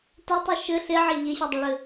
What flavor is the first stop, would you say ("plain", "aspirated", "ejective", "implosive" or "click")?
plain